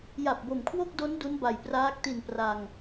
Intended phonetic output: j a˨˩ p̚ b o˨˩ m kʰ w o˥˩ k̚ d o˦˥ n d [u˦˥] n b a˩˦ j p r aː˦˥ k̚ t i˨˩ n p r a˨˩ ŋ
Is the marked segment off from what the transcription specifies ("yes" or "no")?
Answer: no